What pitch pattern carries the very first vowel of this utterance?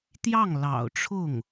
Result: falling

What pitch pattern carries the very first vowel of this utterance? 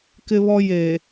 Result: high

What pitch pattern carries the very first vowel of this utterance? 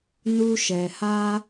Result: high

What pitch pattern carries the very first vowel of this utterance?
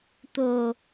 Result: low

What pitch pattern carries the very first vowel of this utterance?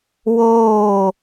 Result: falling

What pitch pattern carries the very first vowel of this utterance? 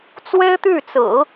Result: high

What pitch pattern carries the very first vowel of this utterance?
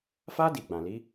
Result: high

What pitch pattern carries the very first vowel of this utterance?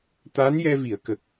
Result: rising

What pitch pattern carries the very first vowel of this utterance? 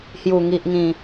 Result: low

